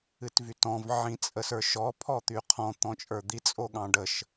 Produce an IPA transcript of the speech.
ɨ t v y t ɔ̃ v ʕ ĩ t͡sʼ ə s ə˞ ʃ ɔ pʰ ɔ t̪ y qʰ ɔ̃ t̪ ɔ̃ t͡ʃʼ ə˞ d̪ i t͡sʼ o ɠ ɑ̃ ɖ ə ʃ

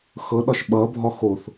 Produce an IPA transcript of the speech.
x ɤ ɗ ɒ ʃ ɓ ʌ bʱ ɒ x o θ

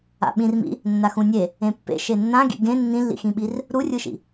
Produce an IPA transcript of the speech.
a̰ ɓ ĩ r m ḭ | nː a x ũ nʲ e | ẽ pː ḛ ʃ e nː ã ɡ ḭ ɡ ẽ nː ĩ lː ḭ x ĩ ɓ i r | ɾ u rʲ ɯ ʃ ḭ

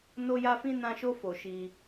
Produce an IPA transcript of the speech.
n o˧ j a˧ f ĩ˧ n ã˧ ʃ o˧ f o˨ ʃ i˧

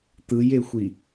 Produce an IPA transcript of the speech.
t̪ ɯ j e xʷ i

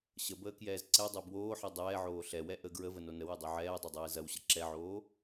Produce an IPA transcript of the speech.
ɕ ə b əː k j ɛː z ǀ ɛ dˤ o b w oː ħ ɛ dˤ ɛː ʕ oː ɬ ɛ w ɛ ʔ ə ɡ ɹ ə v ə n o n ə w ɛ dˤ o ʕ ɛː dˤ o dˤ ɛː z ɐ w ɕ ə ǁ ɛ ʕ oː

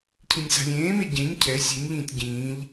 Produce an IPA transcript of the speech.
cʰ ĩ nʲ s a̤ lʲ ẽː m e ɟ ẽ ɲ cʰ ɛ sʲ e nʲ ʎ ĩː tʲ ɟ ĩː ʎ

